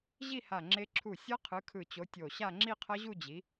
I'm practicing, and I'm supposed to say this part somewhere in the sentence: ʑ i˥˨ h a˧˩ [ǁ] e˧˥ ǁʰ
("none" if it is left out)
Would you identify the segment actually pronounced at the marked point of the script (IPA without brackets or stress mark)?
ŋ͡ǁ